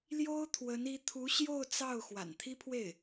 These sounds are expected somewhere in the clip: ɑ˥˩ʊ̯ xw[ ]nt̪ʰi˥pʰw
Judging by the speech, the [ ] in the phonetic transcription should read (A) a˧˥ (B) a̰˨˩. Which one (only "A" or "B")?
B